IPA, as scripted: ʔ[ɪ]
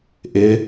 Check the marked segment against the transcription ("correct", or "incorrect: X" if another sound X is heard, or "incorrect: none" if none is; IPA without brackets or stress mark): correct